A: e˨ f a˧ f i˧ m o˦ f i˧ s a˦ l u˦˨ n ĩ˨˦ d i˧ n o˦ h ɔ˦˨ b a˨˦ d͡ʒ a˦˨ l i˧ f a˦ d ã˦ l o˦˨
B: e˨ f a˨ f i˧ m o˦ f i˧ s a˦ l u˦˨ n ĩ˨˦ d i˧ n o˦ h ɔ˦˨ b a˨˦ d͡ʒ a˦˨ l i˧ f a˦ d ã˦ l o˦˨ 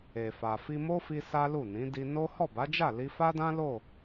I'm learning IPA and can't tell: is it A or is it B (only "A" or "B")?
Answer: B